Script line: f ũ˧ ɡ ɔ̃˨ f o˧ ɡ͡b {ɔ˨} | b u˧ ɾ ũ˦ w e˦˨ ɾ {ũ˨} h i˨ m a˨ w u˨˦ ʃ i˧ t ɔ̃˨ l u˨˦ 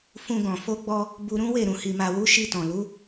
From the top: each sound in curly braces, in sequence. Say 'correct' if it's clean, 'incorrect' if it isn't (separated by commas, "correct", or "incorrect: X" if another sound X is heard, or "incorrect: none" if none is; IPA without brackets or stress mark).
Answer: incorrect: ɔ˧, correct